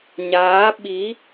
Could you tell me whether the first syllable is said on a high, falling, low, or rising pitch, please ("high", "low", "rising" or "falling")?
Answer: rising